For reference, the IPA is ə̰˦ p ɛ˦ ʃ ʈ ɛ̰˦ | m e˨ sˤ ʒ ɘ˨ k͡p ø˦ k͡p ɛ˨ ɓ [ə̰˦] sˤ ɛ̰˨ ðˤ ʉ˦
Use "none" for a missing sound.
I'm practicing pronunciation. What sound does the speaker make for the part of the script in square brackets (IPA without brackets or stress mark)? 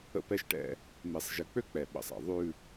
ə̰˨